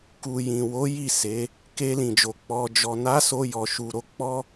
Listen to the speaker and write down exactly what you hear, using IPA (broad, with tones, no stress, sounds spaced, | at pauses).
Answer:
k u˨ j ĩ˨ w o˨˦ j i˦˨ s e˨˦ | k e˧ l ĩ˨ d͡ʒ o˨ k͡p ɔ˨ d͡ʒ ɔ˨ n a˨˦ s o˧ j ɔ˨ ʃ u˨ ɾ o˧ k͡p ɔ˦